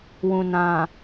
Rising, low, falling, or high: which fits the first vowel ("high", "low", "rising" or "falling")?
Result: low